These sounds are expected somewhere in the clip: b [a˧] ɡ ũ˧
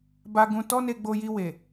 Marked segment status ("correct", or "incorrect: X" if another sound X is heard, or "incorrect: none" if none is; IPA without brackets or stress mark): correct